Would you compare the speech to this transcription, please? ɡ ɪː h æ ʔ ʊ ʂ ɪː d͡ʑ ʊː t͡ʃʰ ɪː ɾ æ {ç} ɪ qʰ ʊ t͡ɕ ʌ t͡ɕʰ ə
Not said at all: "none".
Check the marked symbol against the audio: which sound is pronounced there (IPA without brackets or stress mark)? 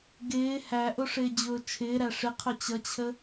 ʂ